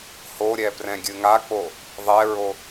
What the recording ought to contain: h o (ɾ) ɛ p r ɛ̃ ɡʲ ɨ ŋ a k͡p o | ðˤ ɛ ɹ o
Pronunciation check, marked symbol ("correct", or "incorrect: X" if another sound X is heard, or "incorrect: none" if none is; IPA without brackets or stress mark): incorrect: ɾʲ